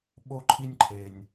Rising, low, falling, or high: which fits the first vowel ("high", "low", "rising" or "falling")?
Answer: high